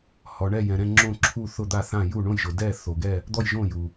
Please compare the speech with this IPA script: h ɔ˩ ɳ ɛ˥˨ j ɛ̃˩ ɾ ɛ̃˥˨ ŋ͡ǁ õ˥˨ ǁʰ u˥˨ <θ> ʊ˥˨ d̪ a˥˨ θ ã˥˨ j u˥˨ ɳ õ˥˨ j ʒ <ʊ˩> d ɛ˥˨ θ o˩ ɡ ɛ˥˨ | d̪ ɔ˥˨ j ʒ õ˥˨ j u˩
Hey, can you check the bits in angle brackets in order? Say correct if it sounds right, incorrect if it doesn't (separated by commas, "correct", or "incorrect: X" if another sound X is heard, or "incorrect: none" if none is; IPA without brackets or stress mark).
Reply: correct, correct